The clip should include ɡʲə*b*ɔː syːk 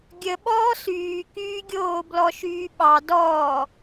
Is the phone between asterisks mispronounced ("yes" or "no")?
yes